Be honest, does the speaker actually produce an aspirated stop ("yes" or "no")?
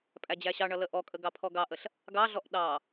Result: yes